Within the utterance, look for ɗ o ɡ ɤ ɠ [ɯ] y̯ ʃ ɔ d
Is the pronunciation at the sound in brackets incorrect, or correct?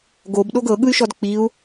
correct